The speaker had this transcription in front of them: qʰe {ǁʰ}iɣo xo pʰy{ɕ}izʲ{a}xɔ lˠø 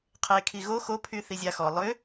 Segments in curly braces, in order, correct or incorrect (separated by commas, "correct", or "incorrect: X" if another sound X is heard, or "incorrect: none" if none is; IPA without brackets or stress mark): incorrect: kʰ, incorrect: θ, correct